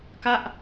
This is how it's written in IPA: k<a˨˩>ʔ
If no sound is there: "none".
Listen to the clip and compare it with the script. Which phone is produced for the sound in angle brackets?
a˥˩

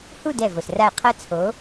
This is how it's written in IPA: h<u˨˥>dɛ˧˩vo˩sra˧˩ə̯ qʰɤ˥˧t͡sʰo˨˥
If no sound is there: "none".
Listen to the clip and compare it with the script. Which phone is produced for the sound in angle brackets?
u˥˧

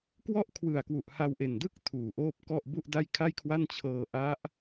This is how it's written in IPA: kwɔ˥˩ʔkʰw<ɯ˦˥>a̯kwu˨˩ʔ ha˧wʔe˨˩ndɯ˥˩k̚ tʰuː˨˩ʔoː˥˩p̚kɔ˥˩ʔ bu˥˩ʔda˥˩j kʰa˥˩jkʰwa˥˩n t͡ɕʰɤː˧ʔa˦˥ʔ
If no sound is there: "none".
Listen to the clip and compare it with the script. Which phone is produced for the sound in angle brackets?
ɯ˨˩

